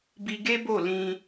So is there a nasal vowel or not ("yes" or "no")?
yes